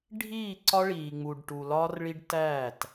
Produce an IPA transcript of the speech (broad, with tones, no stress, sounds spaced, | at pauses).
ɖʱ iː˦˨ ǀ ɒ˦ ɭ iː˨ ŋ͡m u˨ ɖ ʈ u˨ l ɒː˦ r ɭ i˦ ɖ t æː˦˨ t